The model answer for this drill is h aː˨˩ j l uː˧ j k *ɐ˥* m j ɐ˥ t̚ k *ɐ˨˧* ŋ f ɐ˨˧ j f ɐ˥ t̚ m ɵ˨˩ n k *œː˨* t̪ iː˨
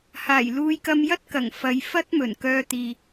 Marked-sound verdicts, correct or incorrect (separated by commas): incorrect, incorrect, incorrect